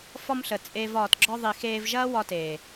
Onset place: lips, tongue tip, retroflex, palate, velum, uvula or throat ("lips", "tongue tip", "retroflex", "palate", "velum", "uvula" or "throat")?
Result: lips